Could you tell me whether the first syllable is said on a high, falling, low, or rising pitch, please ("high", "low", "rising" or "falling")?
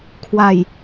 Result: low